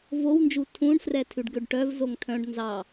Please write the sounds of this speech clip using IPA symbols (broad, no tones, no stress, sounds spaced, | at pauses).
v o w n d͡ʒ u tʰ ũ ɳ f r ɛ tʰ ʉ ɖ ɡ ø ɖ ʈ œ v z o ŋ tʰ œ̃ ɖ n z ɑ